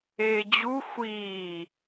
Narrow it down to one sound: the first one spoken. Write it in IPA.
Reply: eː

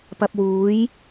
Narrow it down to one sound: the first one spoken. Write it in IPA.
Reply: p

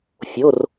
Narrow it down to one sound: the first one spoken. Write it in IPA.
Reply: fʲ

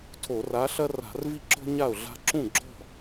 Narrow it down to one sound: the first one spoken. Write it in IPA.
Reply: tʰ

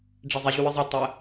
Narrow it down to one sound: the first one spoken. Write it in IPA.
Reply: ɖ͡ʐ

